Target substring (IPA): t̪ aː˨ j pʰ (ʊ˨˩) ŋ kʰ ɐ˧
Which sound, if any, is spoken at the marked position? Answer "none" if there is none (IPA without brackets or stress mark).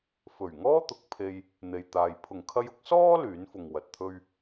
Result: ʊ˨˩